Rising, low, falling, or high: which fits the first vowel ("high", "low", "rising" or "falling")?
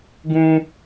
high